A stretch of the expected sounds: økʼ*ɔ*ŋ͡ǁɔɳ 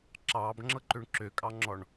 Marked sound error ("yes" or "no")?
yes